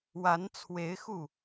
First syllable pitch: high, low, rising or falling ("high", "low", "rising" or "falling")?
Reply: rising